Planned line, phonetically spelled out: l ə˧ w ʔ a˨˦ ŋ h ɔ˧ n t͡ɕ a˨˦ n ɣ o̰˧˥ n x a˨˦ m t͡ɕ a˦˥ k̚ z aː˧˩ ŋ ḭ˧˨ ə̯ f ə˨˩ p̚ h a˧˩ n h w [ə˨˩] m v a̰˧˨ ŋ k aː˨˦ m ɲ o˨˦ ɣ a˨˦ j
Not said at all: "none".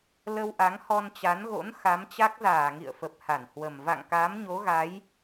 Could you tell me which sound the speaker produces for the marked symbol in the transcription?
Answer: ə˨˩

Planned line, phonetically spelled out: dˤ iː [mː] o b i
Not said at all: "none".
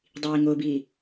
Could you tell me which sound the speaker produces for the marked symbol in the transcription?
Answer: ŋ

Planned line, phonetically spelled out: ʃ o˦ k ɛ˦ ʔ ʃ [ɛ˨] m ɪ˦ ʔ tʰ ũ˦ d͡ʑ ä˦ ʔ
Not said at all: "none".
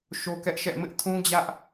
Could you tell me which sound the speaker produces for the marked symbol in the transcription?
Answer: ɛ̰˦˨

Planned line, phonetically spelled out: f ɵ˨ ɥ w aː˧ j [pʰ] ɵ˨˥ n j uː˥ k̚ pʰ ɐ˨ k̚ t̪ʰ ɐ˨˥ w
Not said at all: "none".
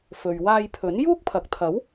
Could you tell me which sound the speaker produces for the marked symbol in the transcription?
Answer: pʰ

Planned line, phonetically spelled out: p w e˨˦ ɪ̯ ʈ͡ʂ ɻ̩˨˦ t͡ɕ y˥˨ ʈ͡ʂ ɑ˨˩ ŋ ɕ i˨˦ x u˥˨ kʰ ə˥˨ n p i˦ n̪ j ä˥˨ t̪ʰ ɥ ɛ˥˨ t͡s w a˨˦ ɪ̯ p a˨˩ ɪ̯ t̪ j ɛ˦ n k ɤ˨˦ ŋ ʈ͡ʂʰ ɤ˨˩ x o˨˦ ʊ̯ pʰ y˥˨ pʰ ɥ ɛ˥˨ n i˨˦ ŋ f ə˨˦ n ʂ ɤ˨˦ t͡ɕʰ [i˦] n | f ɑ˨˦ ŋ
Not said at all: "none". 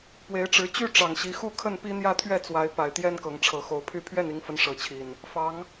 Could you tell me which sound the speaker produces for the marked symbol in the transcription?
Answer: i˨˩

